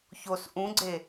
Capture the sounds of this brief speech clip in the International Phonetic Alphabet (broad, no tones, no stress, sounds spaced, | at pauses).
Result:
ç o s ʔ ũ ɡ͡ǀ e